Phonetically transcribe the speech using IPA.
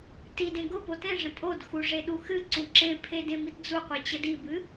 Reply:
tidẽ ɡʊpo tẽʐə̃ tʼodxu ʐeɗuxɨǀũ ǁẽpʰe dẽmitd͡zuqʷi t͡ɕədibɨ

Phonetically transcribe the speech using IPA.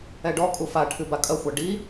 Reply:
ɛɖɔ kʼufa ʈʰɨbakʼɐ xʷaɖi

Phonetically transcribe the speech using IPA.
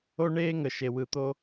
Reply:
o˦ɳeː˦ŋə˨ʃe˨ wɯ˨t̪o˦

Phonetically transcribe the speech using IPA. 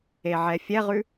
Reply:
eʕɛfʲɛʁʉ

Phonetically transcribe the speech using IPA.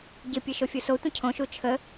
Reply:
ɟɪpʲɘ ʃofʲusotʷə̃ cʰõʃu t͡ʃʰə

